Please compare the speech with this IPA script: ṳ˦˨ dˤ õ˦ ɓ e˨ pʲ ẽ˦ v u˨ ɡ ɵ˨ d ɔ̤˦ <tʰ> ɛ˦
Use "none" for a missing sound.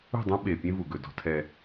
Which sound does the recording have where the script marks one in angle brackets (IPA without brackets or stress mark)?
tʰ